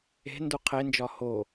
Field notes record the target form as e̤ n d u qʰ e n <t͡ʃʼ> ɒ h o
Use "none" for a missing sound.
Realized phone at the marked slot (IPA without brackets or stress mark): d͡ʒ